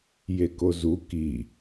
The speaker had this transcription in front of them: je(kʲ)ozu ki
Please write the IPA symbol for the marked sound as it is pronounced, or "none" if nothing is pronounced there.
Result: k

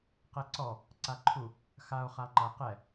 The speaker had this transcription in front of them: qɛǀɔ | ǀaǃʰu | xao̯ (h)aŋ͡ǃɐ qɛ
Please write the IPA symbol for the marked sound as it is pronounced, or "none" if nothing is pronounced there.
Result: χ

